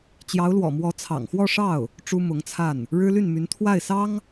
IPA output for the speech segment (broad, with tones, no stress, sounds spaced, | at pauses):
t͡ɕ j ɑ˧˥ ʊ̯ l w ɔ̰˨˩ m w ɔ˧˥ t͡sʰ ɑ̰˨˩ ŋ x w ɔ˥˧ ʂ ɑ˥˩ ʊ̯ | ʈ͡ʂ u˥ m ʊ˧˥ ŋ t͡sʰ a˥˩ n | ɻ ɻ̩˥ l y˥˩ n m y˧˥ n t̪ʰ w a˥˩ ɪ̯ s ɑ˥ ŋ